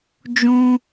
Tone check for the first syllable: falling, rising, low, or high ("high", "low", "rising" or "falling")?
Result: high